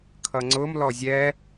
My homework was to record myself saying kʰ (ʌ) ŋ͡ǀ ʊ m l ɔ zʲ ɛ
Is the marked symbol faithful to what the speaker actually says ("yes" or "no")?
yes